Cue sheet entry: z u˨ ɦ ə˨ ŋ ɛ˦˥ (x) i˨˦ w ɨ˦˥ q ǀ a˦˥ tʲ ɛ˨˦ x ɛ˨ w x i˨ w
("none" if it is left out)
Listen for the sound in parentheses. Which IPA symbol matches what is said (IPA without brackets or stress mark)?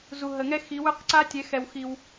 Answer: x